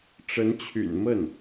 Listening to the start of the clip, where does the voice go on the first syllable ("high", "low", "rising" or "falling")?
rising